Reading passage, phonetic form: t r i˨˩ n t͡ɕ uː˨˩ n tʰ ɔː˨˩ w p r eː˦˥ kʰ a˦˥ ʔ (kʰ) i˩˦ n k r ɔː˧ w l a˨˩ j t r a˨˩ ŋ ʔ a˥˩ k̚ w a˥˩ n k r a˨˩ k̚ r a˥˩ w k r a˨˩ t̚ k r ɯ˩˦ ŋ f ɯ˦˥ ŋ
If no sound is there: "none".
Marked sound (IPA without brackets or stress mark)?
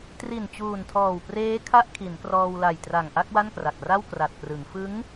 kʰ